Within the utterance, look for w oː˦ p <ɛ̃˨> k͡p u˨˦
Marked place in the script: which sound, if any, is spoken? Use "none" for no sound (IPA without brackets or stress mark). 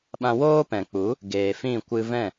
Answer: ɛ̃˨